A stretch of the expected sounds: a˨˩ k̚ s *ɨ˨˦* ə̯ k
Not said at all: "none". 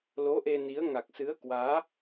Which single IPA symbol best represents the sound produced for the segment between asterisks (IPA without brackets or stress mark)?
ɨ˨˦